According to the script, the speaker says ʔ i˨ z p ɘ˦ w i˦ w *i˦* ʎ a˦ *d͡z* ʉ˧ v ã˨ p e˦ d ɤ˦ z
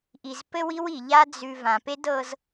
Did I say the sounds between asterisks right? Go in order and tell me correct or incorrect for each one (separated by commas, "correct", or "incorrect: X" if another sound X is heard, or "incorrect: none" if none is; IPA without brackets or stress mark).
incorrect: i˨, correct